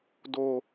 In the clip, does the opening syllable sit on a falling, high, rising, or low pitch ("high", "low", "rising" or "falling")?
high